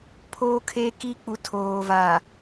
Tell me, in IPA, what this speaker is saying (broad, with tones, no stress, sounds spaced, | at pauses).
pʰ o˦ kʰ e˦ k i˦ k͡p u˨ tʰ oː˨ v a˨